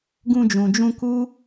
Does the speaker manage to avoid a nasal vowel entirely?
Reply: no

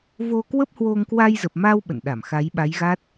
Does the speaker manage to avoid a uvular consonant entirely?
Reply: yes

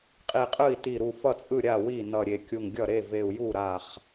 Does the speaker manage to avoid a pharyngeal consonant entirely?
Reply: yes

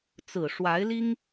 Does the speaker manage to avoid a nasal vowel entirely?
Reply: yes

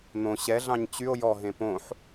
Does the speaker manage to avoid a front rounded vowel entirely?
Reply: no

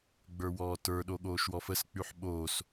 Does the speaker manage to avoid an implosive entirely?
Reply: no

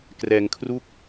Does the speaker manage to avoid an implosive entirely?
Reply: yes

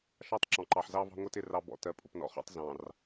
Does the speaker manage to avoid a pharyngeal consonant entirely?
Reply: no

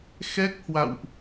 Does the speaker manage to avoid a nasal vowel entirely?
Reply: yes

